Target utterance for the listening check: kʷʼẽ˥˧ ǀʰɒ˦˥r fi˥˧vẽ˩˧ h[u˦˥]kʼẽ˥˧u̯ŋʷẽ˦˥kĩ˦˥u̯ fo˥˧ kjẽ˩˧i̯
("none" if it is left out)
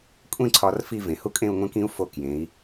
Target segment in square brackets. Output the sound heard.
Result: u˦˥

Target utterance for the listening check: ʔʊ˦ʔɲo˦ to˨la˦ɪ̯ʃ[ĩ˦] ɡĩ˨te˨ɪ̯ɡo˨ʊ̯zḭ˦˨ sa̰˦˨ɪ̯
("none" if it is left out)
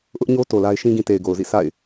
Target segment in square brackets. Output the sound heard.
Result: ĩ˦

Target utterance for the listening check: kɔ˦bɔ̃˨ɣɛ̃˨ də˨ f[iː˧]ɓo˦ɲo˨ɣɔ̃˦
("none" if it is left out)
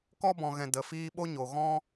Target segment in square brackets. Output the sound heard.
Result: iː˧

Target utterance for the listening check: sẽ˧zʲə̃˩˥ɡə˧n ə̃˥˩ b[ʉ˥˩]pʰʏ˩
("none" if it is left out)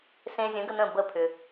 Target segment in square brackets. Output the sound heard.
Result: ə˥˩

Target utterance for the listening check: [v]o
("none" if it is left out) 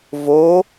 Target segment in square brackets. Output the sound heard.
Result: v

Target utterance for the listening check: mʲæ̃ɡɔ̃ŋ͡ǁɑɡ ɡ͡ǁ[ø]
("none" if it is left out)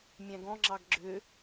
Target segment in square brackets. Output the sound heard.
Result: ø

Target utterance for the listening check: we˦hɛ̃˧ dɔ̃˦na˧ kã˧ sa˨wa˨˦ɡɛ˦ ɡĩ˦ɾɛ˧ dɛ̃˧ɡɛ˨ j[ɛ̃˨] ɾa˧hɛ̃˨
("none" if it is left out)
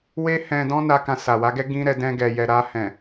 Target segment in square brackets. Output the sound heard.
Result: ɛ˨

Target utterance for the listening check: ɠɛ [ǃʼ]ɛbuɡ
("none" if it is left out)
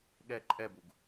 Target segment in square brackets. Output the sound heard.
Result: ǃʼ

